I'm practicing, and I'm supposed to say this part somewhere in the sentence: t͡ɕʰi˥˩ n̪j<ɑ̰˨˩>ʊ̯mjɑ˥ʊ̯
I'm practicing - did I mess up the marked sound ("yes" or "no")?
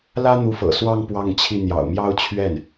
no